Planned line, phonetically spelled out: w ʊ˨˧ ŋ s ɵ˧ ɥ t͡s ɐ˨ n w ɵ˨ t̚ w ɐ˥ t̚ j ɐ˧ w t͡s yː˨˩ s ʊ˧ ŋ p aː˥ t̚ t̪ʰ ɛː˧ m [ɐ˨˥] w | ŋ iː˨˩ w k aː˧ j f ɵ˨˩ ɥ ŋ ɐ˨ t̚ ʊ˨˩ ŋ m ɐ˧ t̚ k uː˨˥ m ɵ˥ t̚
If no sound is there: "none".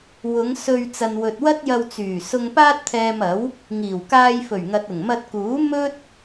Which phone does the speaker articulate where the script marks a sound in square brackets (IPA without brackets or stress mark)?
ɐ˨˥